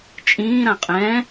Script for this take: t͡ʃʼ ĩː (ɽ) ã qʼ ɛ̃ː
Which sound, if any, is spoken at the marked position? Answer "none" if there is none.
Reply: ɾ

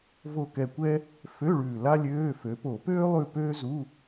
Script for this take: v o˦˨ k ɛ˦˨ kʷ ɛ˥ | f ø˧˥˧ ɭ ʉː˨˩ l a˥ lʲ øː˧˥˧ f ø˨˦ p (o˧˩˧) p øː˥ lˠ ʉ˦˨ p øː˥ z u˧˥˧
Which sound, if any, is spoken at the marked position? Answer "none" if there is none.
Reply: o˧˩˧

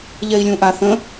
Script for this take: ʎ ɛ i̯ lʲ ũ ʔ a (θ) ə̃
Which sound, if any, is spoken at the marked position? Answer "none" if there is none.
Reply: θ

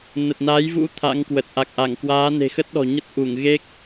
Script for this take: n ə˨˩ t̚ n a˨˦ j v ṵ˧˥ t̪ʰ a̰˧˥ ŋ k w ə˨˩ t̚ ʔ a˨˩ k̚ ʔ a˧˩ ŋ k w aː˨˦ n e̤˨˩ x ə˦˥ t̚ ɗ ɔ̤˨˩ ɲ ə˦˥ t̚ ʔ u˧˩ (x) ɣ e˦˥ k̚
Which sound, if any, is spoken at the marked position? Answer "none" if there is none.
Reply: ŋ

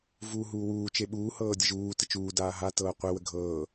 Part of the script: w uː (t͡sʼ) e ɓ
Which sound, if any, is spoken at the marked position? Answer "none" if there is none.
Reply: t͡ʃ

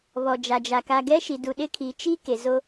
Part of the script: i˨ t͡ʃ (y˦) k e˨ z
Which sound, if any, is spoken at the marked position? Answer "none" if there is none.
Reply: i˦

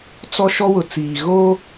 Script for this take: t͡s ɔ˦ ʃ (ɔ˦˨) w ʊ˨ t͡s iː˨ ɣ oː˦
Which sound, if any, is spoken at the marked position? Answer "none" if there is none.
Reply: ɔ˦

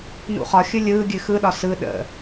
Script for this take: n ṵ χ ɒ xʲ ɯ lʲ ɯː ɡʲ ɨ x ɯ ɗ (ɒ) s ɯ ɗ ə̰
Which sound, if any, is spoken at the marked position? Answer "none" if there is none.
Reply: ɒ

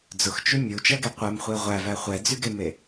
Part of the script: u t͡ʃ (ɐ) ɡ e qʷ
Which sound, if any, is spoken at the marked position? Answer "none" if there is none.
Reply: ɐ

